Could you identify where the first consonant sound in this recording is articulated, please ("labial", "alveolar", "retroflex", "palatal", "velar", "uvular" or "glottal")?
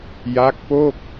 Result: palatal